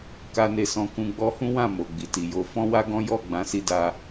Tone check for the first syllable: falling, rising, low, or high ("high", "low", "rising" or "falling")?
high